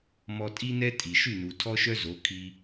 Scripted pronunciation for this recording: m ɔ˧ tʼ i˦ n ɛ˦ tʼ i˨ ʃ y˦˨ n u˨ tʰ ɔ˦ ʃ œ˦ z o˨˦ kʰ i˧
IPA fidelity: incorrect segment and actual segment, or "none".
none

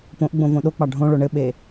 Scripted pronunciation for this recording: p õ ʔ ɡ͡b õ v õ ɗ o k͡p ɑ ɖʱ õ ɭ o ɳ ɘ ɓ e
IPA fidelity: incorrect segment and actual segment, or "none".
none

